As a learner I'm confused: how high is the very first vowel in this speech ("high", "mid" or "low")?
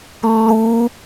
high